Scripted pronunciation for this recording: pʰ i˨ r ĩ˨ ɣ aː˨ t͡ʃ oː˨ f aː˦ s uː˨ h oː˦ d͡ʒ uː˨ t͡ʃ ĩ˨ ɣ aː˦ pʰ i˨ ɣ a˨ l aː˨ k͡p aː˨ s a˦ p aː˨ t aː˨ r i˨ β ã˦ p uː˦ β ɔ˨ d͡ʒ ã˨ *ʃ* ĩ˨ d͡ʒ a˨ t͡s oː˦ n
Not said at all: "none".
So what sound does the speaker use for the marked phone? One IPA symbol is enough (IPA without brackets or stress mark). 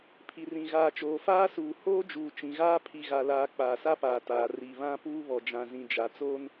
z